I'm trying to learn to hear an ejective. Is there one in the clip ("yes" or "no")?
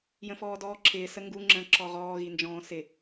no